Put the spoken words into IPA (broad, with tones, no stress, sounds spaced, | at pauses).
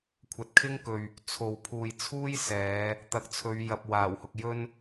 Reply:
kʷʰ ɐ˨ t̚ kʰ ɪ˥ ŋ k ɵ˨ ɥ | t͡sʰ o˨ w pʰ uː˨ j t͡sʰ uː˥ j s ɛː˨˧ | t̪ ɐ˨˥ k̚ t͡sʰ ɵ˨˧ ɥ j ɐ˨ p̚ w aː˨˩ w h ʊ˨ k̚ j ɵ˧ n